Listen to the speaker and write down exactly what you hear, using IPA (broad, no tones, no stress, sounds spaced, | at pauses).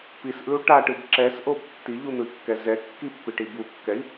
p i s ʔ ɯ u̯ ʈ a ʈ ɯ b ǁ ɛ s ʔ o b tː i ʎ u n̪ ɯ i̯ kː ɛ z ɛ kː i pː i ʈ i b u kː ɛ i̯